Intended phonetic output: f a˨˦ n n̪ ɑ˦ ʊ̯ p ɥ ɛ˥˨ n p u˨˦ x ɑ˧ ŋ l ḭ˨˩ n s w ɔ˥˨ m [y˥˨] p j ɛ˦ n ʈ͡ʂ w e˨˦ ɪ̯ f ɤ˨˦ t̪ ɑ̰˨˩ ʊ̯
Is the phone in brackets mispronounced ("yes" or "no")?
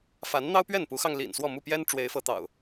yes